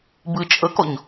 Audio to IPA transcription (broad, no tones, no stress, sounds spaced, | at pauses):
b ɨ t͡ʃʼ ə k ɔ ɲ